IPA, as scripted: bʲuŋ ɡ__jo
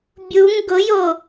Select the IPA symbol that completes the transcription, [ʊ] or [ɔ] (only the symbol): ʊ